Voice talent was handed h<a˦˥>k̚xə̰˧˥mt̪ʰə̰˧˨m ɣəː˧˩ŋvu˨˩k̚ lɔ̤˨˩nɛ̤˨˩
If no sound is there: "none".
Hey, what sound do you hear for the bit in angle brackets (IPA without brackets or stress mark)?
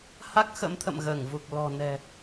a˦˥